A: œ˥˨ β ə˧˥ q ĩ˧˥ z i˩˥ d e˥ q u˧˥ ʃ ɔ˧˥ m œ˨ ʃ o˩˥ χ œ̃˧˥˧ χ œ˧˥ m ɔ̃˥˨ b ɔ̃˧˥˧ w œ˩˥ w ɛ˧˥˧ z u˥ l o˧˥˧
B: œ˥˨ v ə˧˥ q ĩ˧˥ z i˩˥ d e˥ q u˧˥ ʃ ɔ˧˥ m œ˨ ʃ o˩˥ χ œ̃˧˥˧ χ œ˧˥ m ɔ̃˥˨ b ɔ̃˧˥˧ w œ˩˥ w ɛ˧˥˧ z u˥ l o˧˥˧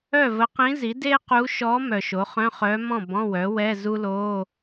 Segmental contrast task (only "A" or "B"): B